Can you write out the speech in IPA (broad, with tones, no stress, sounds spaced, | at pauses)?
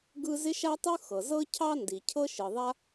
ɡ ɯ˥ z ɪ˥ ʃ a˥ tˤ ɯ˥ x ɤ˩ z ɤ˥ cʰ ɑ˥ n d i˩ cʰ ɤ˥ ʃ ɯ˩ ðˤ a˥